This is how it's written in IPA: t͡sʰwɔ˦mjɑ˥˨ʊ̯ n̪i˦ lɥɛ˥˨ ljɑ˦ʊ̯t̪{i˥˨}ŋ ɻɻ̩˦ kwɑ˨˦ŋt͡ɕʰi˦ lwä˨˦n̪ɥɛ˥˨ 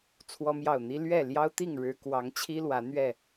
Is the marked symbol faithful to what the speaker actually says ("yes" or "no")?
yes